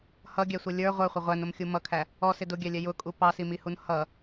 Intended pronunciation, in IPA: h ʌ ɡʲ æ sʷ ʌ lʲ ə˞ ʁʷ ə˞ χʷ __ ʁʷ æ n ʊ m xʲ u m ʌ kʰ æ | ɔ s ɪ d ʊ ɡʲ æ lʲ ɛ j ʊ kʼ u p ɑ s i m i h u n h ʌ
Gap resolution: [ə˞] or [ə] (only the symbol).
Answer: ə